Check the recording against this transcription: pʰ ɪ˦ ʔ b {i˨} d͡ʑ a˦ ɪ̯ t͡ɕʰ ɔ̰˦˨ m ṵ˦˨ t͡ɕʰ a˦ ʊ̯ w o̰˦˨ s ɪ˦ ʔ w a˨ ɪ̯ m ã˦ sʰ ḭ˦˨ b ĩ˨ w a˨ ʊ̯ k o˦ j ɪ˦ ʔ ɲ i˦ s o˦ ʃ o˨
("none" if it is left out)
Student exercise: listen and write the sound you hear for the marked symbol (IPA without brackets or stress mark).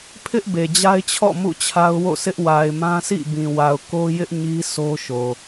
e˨